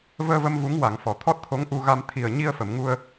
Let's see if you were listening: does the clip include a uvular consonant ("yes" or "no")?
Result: no